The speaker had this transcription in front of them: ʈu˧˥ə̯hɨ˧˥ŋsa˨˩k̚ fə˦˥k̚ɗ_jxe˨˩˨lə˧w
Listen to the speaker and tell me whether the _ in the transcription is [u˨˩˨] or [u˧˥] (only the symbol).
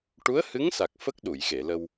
u˨˩˨